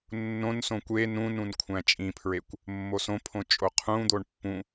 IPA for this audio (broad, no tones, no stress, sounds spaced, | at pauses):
nː õ n s õ kʷ e n ũ n ũ n kʷʰ æ̃ t͡ʃʼ ĩ pʰ ɹ e kʷ | mː o s õ pʰ õ t͡ʃʼ o qʰ ũ d̪ o ɳ pː ũ